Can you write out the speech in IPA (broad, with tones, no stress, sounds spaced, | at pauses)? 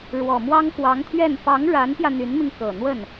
ɻ w ɔ˨˩ m w ɑ˥ ŋ k w ɑ˧˥ ŋ t̪ʰ ɥ ɛ˥˩ n p ɑ˧˥ ŋ ɻ a˧˥ n p j ä˧ n̪ y˧˥ n m i˧ ŋ k ɤ˨˩ n̪ w ə˥˩ n